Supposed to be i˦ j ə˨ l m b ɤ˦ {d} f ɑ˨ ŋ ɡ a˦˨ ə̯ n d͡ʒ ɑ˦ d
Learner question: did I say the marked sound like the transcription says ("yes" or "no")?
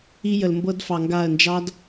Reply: yes